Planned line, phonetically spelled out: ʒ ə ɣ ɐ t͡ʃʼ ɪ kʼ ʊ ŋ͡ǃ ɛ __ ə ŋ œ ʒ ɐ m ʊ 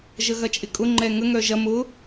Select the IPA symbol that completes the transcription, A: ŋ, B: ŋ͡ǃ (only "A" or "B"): A